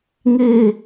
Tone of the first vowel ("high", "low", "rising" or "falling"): high